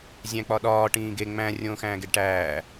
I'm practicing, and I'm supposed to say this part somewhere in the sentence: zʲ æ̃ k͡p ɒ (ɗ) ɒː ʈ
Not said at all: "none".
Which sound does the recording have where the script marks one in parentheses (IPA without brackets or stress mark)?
ɗ